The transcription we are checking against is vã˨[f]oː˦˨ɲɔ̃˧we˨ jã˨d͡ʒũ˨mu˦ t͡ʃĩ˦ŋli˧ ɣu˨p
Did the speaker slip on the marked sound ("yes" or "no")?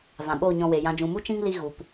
yes